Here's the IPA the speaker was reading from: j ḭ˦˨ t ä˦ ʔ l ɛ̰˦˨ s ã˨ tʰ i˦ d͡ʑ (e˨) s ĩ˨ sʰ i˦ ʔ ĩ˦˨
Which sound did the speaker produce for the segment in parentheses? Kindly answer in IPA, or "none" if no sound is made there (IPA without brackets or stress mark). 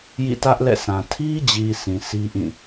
i˨